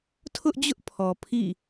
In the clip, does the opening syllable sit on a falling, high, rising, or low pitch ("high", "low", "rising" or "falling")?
high